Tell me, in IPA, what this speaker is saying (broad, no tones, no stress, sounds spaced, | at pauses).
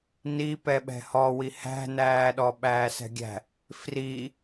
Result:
n i p ɛ ɓ ɛ̤ h ɔ w i h æ̤ n æː ɗ ɔ ɓ æː s ɛ̤ ɡʲ æ̤ | f r i